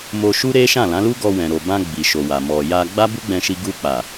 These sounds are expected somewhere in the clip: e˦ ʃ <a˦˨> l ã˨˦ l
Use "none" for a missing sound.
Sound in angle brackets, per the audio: ã˦˨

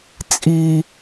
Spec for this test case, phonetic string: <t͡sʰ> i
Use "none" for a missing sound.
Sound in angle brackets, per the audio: t͡sʼ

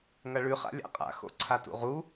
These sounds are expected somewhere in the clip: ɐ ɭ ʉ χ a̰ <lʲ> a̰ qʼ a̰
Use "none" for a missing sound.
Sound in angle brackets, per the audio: lʲ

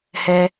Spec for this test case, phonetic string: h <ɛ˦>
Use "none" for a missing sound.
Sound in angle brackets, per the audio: ɛ˦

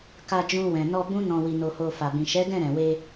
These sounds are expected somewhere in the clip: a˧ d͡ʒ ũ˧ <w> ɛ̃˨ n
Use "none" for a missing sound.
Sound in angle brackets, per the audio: w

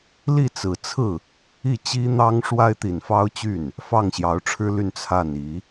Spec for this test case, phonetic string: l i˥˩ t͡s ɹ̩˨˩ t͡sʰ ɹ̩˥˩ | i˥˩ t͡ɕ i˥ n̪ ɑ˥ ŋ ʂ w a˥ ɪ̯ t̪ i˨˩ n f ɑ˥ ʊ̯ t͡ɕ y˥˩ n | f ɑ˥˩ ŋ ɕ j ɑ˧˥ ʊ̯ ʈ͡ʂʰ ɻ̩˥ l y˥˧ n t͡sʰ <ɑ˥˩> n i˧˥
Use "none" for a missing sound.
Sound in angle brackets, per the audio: a˥˩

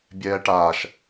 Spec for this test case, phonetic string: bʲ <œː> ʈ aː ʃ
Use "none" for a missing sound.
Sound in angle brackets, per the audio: ɛː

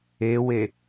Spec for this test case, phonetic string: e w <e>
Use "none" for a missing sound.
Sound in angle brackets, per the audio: e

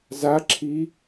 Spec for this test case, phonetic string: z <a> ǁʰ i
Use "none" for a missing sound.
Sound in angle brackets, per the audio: a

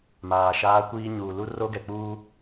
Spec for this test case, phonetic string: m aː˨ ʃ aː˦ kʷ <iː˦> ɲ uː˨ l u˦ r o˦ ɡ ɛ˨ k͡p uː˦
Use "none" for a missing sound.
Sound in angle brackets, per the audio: iː˦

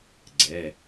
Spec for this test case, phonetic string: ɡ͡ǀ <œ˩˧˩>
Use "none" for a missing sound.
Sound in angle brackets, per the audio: ɛ˩˧˩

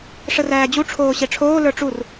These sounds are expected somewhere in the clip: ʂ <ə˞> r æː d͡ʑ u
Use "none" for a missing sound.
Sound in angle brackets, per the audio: ə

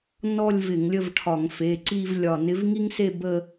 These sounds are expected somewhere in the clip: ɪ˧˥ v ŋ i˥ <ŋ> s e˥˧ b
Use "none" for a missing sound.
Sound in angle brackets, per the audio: ŋ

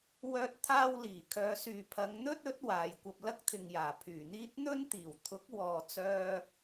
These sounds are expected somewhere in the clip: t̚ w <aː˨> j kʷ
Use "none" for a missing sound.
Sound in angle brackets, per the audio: aː˨˧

